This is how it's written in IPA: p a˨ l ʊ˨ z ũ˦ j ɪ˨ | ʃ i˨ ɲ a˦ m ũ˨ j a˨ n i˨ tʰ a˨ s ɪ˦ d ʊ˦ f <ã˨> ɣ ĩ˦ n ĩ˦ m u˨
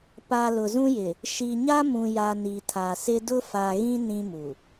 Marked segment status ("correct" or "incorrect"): incorrect